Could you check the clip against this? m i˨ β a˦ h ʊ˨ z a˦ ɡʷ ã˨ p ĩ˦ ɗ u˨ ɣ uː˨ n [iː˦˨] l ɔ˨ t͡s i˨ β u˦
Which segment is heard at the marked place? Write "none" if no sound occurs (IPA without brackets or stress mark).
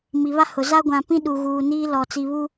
iː˦